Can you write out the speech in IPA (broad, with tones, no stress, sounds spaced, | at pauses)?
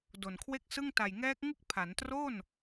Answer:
d o˨˩ n kʰ w e˥˩ k̚ s ɯ˥˩ ŋ t a˨˩ j ŋ ɛː˦˥ k̚ ŋ ɯ˥˩ k̚ pʰ a˩˦ n t r o˥˩ n